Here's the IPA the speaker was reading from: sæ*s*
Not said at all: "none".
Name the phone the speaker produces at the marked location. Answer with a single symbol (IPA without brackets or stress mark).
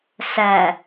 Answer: none